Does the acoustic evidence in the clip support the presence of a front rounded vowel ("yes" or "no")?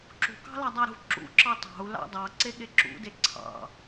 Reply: no